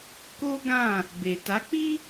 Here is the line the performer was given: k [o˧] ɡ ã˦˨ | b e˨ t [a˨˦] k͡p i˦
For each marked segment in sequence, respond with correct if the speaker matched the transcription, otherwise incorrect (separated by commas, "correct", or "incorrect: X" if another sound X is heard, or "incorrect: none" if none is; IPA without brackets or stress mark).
incorrect: o˦, correct